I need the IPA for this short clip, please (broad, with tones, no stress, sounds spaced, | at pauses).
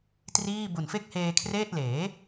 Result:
t r iː˥˩ b u˨˩ n f e˥˩ k̚ h eː˧ kʰ r eː˥˩ t̚ l eː˩˦